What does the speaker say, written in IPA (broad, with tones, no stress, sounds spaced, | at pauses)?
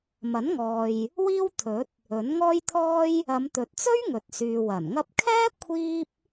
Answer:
m ɐ˨˥ n ŋ ɔː˨ j | w iː˥ w t̪ʰ ɵ˨˥ t̚ | ɵ˨˥ n ŋ ɔː˥ j t̪ʰ ɔː˥ j | ɐ˨˧ m t̪ ɵ˨ t̚ t͡s ɵ˥ ɥ ŋ ɵ˨ t̚ s yː˨ w ɐ˨˩ n ŋ ɐ˧ p̚ kʰ ɛː˥ kʷʰ iː˥ p̚